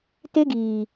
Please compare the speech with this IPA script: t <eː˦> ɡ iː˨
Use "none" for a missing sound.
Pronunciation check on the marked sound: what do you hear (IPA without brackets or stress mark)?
e˦